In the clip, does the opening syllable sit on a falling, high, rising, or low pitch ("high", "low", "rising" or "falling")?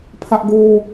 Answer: high